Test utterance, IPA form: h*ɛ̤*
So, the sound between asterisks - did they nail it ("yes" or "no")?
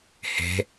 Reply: no